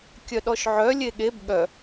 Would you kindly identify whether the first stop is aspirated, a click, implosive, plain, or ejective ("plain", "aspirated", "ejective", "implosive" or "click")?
plain